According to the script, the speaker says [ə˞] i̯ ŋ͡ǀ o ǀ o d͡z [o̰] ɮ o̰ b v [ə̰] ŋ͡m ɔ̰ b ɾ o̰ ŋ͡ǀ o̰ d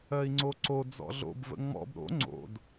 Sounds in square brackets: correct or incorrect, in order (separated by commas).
incorrect, incorrect, correct